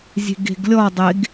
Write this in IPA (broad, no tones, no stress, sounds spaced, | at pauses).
zʲ e̤ ɡ e̤ ɡ lʲ ɔ dˤ e ɡ